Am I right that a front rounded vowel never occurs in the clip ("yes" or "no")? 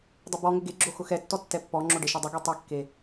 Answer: no